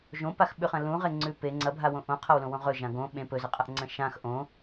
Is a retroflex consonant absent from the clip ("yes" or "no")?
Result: yes